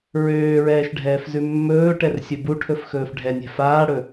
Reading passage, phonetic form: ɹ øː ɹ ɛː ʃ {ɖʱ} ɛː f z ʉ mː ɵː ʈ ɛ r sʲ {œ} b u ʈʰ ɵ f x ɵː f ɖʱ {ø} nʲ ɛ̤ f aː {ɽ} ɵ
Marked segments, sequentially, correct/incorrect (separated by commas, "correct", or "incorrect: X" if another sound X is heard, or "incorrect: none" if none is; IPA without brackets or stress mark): correct, incorrect: ɵ, incorrect: ɛ, correct